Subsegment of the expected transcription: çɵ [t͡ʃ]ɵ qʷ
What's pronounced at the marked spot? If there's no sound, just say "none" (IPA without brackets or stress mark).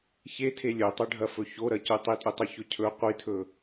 cʰ